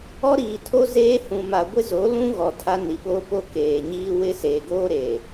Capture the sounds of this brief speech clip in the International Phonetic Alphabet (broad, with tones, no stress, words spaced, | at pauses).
ɔ˦ɾiː˨tʰo˦ zeː˦ hũ˨ma˨ ɡʷɪ˦zo˨˦lũ˦ ɣɔ˨tʰa˦ ni˨ɓoː˦po˦ keː˨ɲiː˦ wɪ˦se˨ɡoː˦ɾe˨